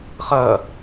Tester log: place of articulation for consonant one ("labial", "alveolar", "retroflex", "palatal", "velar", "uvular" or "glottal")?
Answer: uvular